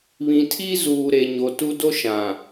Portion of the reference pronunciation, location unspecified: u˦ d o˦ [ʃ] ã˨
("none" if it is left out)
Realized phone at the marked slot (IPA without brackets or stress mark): ʃ